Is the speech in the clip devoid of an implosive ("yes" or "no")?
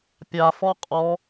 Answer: yes